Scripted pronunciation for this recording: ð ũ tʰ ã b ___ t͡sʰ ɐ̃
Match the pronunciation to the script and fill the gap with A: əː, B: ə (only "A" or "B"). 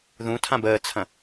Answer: A